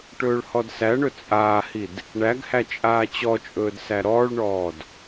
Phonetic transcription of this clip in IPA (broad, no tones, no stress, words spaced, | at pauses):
ʈɵːɭhɔdsæɳɵ t͡sʼaːhid | ɳæɡhæ t͡ʃʼaːt͡ɕɔt͡ʃʼɵːd sæɾɔːɭɳɔːd